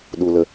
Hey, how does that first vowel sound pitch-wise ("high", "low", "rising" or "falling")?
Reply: low